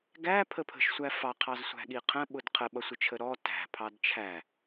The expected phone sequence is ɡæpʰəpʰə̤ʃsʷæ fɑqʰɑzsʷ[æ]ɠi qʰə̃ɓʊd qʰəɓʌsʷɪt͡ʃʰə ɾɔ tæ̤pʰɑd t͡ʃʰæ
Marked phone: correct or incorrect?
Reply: incorrect